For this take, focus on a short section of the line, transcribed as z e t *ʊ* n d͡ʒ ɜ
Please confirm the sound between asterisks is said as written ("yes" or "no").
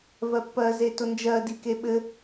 yes